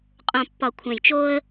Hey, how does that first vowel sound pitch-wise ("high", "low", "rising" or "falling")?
low